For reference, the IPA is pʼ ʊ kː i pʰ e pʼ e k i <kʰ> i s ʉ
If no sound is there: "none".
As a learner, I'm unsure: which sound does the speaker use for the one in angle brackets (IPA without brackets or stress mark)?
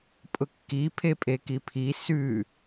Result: pʰ